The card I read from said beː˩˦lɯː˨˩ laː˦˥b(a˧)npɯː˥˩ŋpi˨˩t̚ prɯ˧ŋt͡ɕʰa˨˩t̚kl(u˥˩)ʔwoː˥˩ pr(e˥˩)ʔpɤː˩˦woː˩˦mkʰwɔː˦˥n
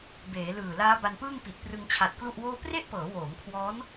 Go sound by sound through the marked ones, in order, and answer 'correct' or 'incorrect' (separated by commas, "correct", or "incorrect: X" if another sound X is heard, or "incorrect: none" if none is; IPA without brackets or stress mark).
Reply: correct, correct, correct